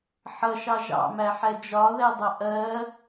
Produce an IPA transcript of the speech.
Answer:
ħʌʃɑ ʒɑ̰mæħɛ d͡ʒɒðɛdˤʌ ʔɜ

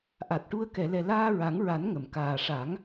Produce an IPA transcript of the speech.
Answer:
ʔa˨˩t̚ʈu˧ə̯ kɛ˨˩˨lɛ˨˩ laː˧ɹa˨˩˦ŋɹa˨˩˦n ŋə˨˩˨mkaː˨˩ ʂa˨˩˦ŋ

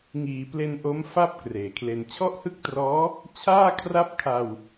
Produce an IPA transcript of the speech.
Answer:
ŋiː˩˦ple˧nʔo˦˥mfa˥˩p̚ kreː˨˩kʰle˧n t͡ɕʰɔ˥˩ʔhɯ˥˩k̚trɔː˦˥ | t͡ɕʰaː˥˩kʰra˥˩p̚kʰa˧w

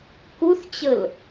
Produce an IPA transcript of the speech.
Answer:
kuθt͡ɕəl

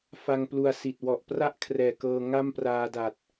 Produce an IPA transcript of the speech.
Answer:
fa˧ŋplu˧a̯si˨˩t̚ wɔ˨˩ʔpra˥˩ʔkʰrɛː˨˩ kɤː˧ ŋa˥˩mpraː˧da˨˩t̚

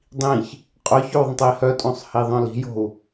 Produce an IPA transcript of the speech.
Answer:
dˤĩç | qʼœçoðˤə̃tˤi hœtʼõsˤhiðˤœ̃ li̤jo̤u̯

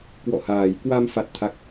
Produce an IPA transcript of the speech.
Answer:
kwɔ̰˧˨haː˨˩jkwa˧m fa˦˥t̚t̪ʰa˦˥k̚

